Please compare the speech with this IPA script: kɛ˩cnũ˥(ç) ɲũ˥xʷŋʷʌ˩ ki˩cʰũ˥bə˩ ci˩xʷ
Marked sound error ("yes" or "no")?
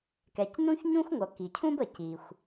no